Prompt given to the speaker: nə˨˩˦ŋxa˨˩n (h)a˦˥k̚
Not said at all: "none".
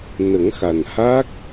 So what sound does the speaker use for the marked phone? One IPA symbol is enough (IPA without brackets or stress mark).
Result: h